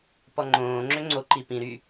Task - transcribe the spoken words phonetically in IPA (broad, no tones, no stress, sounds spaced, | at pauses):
p ɔ ŋ͡ǃ õː ŋ͡ǁ ø ŋ͡ǀ o ǃ i p ĩ ɾ y